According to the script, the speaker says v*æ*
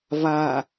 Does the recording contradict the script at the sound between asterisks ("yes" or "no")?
yes